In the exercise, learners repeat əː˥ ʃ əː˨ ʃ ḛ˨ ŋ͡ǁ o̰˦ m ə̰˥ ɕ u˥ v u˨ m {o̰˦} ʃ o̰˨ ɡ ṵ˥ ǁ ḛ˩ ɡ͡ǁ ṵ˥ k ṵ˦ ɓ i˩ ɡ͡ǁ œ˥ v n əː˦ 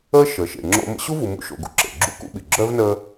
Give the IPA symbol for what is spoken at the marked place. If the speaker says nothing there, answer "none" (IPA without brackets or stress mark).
ṵ˦